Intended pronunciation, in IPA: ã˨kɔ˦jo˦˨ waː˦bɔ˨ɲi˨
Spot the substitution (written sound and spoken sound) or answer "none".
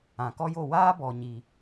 none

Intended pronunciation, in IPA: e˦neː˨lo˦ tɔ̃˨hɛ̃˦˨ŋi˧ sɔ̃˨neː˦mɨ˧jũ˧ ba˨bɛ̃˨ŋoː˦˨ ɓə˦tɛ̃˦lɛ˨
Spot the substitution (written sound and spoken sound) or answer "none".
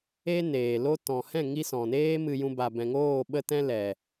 none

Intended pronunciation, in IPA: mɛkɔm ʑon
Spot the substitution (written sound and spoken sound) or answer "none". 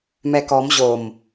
n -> m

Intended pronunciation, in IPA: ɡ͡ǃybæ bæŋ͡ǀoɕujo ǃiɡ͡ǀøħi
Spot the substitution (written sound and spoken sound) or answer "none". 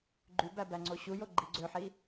ǃ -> ɡ͡ǃ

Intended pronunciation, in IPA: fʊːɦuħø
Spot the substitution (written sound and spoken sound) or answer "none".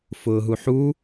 ø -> u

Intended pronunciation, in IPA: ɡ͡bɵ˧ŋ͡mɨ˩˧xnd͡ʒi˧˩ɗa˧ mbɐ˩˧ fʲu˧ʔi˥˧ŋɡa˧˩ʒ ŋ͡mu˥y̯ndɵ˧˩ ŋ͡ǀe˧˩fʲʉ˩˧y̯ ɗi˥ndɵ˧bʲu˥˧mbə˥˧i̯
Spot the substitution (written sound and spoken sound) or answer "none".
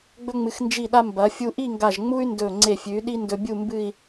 ə˥˧ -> ɨ˥˧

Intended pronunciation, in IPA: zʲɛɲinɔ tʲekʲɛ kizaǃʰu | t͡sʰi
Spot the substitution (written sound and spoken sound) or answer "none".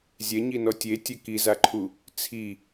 kʲ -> tʲ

